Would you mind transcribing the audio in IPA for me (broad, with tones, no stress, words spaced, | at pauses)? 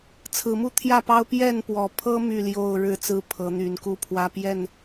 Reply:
t͡sʰɹ̩˨˦mu˦t̪ʰjä˥˨pɑ˦ʊ̯ pjɛ˥˨npwɔ˨˩pʰɤ˦ my˥˨ljo˥˨ʊ̯ ɻɻ̩˥˨t͡sɹ̩˥˨ pʰɤ˨˦n̪y˨˦nku˦ pʰwä˦pjɛ˥˨n